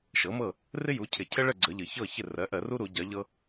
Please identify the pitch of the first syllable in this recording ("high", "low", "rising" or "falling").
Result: rising